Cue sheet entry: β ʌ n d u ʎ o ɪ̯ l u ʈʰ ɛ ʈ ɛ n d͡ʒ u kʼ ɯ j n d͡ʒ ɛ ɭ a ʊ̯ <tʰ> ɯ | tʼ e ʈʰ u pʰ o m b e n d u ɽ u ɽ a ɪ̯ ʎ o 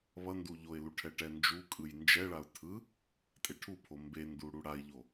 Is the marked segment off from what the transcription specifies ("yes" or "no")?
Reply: no